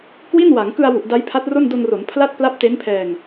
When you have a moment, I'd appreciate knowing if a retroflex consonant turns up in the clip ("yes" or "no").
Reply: no